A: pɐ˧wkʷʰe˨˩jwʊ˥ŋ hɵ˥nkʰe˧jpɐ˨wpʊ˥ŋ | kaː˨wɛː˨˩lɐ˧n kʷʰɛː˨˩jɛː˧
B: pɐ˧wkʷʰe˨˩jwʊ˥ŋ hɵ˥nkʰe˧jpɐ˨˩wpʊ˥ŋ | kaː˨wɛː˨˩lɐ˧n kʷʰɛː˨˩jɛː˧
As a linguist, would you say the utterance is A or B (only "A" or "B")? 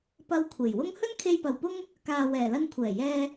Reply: A